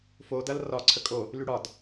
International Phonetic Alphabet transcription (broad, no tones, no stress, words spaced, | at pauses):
fodɐl rɒ ǀʰəkʼo | lyɽɒd